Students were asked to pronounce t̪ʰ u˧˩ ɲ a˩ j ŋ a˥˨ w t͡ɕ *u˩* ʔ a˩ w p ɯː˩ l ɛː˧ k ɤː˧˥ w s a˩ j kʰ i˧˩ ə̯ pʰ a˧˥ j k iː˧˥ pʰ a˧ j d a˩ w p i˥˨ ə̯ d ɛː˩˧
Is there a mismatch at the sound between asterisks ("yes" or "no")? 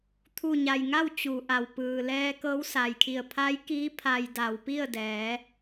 no